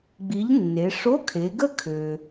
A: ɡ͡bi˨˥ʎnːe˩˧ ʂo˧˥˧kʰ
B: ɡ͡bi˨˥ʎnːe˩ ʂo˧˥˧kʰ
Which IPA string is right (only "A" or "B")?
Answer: A